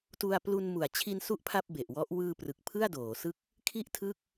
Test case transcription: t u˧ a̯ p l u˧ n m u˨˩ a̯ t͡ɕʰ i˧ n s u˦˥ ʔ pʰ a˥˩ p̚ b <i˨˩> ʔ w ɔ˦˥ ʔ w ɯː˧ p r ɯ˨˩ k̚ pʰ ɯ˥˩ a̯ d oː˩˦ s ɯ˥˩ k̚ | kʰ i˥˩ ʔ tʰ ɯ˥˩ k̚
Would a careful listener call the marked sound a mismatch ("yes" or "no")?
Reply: yes